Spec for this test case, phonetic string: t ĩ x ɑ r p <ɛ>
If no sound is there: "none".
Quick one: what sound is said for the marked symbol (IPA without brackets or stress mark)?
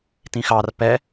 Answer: ɛ